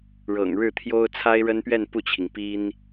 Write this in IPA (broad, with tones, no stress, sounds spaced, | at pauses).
ɻ ɤ̰˨˩ ŋ ɻ ɻ̩˥˩ t̪ʰ j o˥ ʊ̯ t͡sʰ a˥ ɪ̯ ɻ ə˥ n p ɥ ɛ˥˧ n p u˥˩ t͡ɕʰ i˩ ŋ p i˥ n